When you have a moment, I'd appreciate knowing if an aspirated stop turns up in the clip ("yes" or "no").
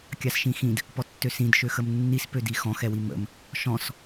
no